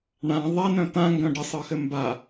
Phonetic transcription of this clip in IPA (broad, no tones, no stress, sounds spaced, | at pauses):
ɳ ã ðˤ ɛ n œ̃ t̪ ã ŋ ɡ œ̃ ɖ ə sˤ ɯ x ɘ m b a